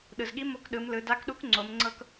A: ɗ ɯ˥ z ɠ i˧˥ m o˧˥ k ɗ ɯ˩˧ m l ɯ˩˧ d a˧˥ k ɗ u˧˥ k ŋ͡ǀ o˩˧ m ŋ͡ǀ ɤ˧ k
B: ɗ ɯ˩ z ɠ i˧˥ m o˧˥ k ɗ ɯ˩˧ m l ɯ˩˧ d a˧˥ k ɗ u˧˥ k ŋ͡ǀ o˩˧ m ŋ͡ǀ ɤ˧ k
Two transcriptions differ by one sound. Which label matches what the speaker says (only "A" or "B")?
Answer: B